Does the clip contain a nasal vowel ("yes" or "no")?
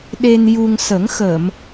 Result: no